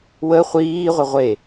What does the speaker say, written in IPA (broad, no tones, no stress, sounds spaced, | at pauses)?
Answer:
w ə χʷ iː ʁʷ ə ʁʷ e